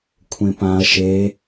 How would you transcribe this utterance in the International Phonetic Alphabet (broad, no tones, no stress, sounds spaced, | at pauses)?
kʷʰ ẽ p ã ɐ̯ ʃ e